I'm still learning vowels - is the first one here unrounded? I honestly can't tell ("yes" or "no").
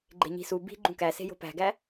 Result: yes